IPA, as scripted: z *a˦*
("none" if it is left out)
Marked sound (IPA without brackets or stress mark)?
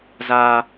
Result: aː˦